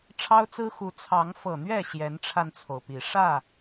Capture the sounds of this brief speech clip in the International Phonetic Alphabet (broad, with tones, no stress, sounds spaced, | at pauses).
ʈ͡ʂʰ ɑ˦ ʊ̯ t͡s ɹ̩˦ x u˨˦ t͡sʰ ɑ˨˦ ŋ f ɤ˨˩ n̪ ɥ ɛ˥˨ ɕ j ɛ˨˦ n ʈ͡ʂʰ a˧ n t͡sʰ o˩ ʊ̯ p i˨˩ ʂ ä˥˨